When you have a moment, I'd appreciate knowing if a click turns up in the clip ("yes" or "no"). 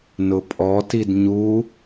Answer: no